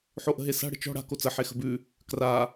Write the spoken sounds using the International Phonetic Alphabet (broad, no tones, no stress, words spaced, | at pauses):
ħoʔə̤ɦesa̤ ɽə̤t͡ʃɔ̤ ɽa̤ kot͡sə ħexə̤bʉ | kra